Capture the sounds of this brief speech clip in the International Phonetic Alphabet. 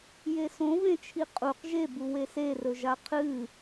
j e s õ v ẽ t͡ʃʰ i qʼ u q ʒ e b u w e s e r ɵ ʒ a qʰ ɨ

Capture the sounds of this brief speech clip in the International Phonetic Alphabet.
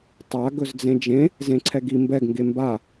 tˤ a ɡ ɵ z d͡z ẽ d͡ʒ ẽ | z ẽ ǀʰ ɛ ɡ i m b ɛ ɡ ŋ ɡ e m b a

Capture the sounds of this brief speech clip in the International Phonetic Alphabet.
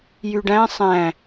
j y ɖ æ̃ sˤ æ̃

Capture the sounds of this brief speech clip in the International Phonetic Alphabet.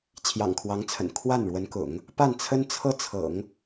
t͡ɕʰ j ɑ̰˨˩ ŋ kʰ w ɑ˧˥ ŋ t͡sʰ ə̰˨˩ n kʰ w a˥˩ n ɻ w ə˧˥ n k ʊ̰˨˩˦ ŋ | p a˥˩ n t͡sʰ ə˥ n t͡sʰ ɤ˥ t͡sʰ ɤ̰˨˩˦ ŋ

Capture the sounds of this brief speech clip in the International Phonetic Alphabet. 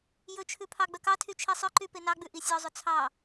j ɵ t͡ʃʰ ʉ pʰ ɑ ɡ͡b œ k ɑ tʰ y t͡ʃʰ i sˤ œ ǃ y p e n ɑ ɡ͡b ʉ ʔ i sʲ ɔ zˤ ɵ t͡sʰ ɑ

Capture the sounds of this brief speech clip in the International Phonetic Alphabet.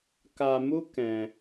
k a˧ m u˦ k ɛ̃˧

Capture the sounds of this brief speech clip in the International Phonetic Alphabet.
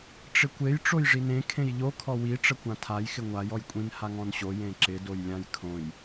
ʈ͡ʂ ɪ kʷ e j ʈ͡ʂ o j ʐ i n ẽ kʰ ẽ j ʎ o kʰ ɔ w i ʈ͡ʂ ə kʷ ã tʰ a j x ɪ ŋʷ a j ɔ j kʷʼ ĩ n h a ŋ ɔ̃ n ɕ o j ẽ ǁ ɪ d o j lʲ ã j kʰ õ j

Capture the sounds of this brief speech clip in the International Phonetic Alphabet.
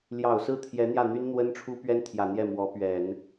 l j ɑ˨˩ ʊ̯ s ɹ̩˥˩ t̪ʰ j ɛ˧˥ n̪ j ä˥˩ n̪ y˥ n n̪ w ə˥ n ʈ͡ʂʰ u˥ p ɥ ɛ˥ n t̪ʰ j ä˨˩ n̪ j ɛ˥˩ m w ɔ˧˥ p ɥ ɛ˨˩˦ n

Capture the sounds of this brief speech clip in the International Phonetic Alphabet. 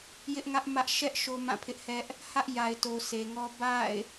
j ɪ˦ ʔ ŋ ä˦ ʔ m ä˦ ʔ ʃ ɛ˦ ʔ ʃ o˦ m ã˦˨ pʰ ɪ˦ ʔ h ɛ˦ ʔ | h ä˦ ʔ j a˨ ɪ̯ t o˨ s e˨ ŋ ɔ˦ b a̰˦˨ ɪ̯

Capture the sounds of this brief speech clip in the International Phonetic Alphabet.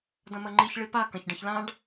d ɐ̃ m ɐ ŋ͡ǃ i ç ɭ i p a k ɐ̃ ç ɖ ɐ̃ ç l ã ɖ

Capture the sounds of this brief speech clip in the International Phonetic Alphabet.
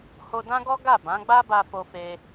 h o˧ d ã˦ ɡ ɔ˦ ɡ a˦˨ b ã˨˦ ɡ͡b a˦ b a˧ f o˧ f e˧

